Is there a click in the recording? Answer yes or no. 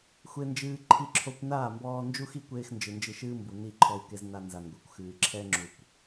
yes